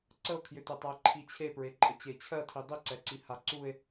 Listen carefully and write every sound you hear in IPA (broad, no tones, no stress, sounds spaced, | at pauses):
ǀ ə o̯ kʰ j ʏ t ʏ tˤ a e̯ ǃʰ i t͡ɕʰ e p ɹ e ǃʼ ə t͡ɕ e t͡ɕʰ ɜ tʰ i dˤ i ǀ ɛ ǀ i h a ǀ u e̯